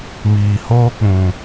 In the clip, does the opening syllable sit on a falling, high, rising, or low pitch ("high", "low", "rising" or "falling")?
low